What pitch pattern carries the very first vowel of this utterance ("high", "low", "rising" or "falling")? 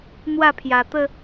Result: falling